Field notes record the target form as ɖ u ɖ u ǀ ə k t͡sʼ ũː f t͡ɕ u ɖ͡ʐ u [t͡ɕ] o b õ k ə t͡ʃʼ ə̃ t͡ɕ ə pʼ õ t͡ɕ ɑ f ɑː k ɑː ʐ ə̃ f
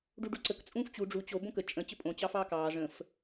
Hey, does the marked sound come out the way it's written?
yes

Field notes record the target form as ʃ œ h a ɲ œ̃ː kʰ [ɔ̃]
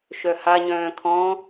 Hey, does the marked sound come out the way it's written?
yes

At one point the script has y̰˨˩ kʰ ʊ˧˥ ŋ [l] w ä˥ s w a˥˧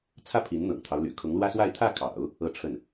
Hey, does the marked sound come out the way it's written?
yes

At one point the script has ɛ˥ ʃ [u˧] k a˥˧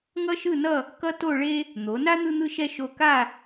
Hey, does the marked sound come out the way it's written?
no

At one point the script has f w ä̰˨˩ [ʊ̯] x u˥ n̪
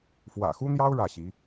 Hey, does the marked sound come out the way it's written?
no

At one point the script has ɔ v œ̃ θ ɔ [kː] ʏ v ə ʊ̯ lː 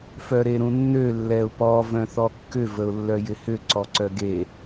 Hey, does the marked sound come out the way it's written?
yes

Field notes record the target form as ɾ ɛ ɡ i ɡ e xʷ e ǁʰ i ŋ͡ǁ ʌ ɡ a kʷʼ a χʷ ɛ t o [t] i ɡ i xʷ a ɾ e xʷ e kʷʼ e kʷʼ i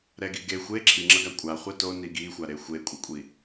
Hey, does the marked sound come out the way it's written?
no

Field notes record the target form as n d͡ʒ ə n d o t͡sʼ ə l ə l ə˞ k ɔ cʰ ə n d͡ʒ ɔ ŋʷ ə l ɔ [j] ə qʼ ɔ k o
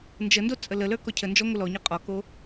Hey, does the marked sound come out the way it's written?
no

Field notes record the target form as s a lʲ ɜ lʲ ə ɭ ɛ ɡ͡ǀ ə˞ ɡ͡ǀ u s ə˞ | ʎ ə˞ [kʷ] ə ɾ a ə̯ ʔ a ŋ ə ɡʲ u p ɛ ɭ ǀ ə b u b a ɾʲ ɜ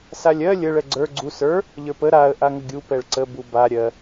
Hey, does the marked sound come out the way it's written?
no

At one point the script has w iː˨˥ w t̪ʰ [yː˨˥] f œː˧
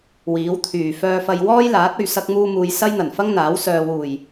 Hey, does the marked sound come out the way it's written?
no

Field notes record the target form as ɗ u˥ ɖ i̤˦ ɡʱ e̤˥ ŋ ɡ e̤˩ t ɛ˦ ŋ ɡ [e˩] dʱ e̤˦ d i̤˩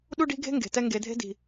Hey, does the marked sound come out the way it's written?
no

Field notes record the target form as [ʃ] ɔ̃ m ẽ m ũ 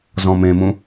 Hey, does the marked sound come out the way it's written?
no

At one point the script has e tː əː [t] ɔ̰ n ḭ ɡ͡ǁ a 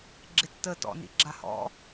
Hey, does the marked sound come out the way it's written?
yes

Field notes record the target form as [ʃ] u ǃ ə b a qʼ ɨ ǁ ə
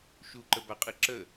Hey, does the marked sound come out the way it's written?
yes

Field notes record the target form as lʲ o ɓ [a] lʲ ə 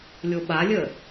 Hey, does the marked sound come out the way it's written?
yes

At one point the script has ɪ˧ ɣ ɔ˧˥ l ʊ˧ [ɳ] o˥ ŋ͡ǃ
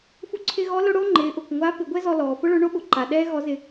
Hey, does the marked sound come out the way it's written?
no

